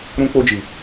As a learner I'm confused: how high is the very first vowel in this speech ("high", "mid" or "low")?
high